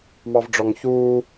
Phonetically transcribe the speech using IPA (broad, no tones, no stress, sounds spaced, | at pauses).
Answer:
m ɑ v ɖ͡ʐ ɔ ŋ ç uː